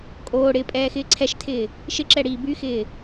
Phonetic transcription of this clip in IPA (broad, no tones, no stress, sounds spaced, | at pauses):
kʼ oː ɽ ɪː pʼ ɛː x ɪː ǀʰ ɛ ʃ tʰ ɪː | ʃ ɪ ǁ ɛ ɽ iː b y x ɪː